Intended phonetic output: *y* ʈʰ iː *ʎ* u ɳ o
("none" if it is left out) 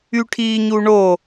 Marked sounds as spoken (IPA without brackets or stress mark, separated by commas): y, ɲ